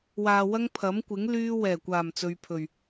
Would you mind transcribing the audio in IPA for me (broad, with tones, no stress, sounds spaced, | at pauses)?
w aː˧ w ɐ˥ ŋ pʰ ɐ˨˥ m kʷ ɪ˨˥ ŋ l yː˥ w ɛː˨˩ kʷ aː˨˩ m t͡s ɵ˨ ɥ pʰ ɵ˨˩ ɥ